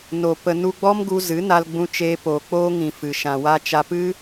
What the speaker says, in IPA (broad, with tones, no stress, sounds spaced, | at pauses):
n o˨ p ə˨ n u˧ ɡ͡b ɔ˦ m ɡ u˧ z ɨ˨˦ n a˧ l ɡ͡b ũ˧ t͡ʃ eː˧ p oː˨ k͡p oː˦ ŋ ĩ˨ f ɨ˨ ʃ ã˨ w a˦ t͡ʃ a˧ p ɨ˦